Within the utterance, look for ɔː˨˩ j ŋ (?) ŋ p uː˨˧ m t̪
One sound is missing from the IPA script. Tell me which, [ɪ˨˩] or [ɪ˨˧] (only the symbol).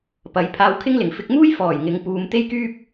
ɪ˨˧